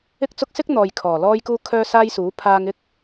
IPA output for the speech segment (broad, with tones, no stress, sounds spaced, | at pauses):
ɪ˥ k̚ t͡s ʊ˥ k̚ s ɪ˥ k̚ n̪ ɔː˨ j kʰ ɔː˨˩ l ɔː˥ j k uː˥ kʰ œː˥ s aː˥ j s uː˨˥ pʰ aː˧ ŋ ɪ˥ k̚